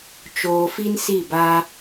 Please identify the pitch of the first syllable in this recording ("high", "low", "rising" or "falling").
low